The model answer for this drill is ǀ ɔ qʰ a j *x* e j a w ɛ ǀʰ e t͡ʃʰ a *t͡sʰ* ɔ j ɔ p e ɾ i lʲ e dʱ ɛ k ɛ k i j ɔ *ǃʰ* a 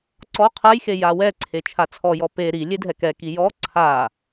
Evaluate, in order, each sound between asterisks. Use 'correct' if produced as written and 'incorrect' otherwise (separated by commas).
correct, correct, incorrect